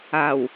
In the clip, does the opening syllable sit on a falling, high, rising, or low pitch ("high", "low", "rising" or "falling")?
low